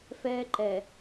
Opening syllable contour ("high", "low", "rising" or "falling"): high